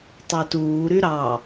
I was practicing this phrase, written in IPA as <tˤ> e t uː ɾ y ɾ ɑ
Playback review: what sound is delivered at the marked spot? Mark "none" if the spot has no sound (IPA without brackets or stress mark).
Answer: tˤ